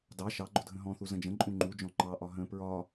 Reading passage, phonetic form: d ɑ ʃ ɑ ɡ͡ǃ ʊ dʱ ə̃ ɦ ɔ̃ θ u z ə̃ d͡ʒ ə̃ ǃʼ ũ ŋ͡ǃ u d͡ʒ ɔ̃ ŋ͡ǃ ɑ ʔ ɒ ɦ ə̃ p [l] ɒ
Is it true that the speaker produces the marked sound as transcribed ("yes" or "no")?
no